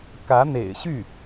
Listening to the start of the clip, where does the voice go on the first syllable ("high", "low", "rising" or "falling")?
rising